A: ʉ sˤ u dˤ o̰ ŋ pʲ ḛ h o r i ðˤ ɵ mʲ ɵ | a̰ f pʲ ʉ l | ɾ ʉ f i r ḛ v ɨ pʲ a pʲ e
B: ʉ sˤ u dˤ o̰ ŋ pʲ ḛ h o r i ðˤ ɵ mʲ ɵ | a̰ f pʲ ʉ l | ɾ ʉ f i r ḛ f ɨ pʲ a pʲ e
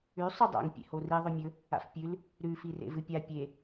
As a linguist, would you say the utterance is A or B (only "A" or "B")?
A